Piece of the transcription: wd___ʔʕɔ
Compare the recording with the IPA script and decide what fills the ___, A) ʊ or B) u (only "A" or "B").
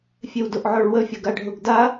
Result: A